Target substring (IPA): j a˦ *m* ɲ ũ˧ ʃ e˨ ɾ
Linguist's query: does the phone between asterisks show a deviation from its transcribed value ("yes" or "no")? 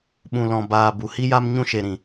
no